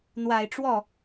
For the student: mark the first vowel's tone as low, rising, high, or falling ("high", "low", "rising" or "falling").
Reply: low